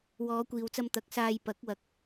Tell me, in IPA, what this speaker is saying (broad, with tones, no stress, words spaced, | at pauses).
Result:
wɔː˨˧kʷiː˨wt͡sɐ˧m t̪ɐ˨˥k̚saː˧j pɐ˨˥k̚ wɐ˥k̚